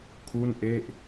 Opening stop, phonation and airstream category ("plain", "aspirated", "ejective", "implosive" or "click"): aspirated